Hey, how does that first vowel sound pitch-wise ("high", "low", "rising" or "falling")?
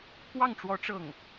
falling